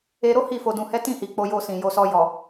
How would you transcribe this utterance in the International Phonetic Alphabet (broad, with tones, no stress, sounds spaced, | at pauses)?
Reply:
e˧ ɾ o˦ h i˦˨ f o˧ d ũ˧ h ɛ˦ t ĩ˦˨ h i˨ k͡p o˧ j o˧ s ĩ˨ j o˧ s ɔ˧ j ɔ˨